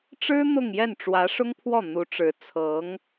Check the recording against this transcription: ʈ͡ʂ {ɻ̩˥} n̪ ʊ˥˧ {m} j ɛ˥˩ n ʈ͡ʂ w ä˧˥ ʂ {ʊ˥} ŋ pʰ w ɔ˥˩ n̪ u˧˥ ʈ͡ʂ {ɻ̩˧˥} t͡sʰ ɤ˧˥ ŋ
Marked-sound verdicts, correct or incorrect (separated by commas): correct, incorrect, correct, correct